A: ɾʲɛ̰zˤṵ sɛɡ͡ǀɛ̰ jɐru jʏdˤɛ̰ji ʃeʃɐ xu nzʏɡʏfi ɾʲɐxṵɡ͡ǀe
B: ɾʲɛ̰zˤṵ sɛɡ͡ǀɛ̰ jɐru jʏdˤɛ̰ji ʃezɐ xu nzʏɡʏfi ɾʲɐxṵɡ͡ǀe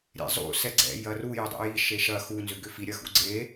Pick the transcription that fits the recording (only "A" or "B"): A